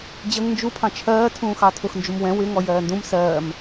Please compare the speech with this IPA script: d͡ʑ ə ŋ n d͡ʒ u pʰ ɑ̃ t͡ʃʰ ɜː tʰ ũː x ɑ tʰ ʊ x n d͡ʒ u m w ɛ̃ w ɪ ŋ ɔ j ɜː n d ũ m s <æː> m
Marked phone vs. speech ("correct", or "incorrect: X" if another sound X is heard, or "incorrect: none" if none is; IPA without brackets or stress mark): incorrect: ɜː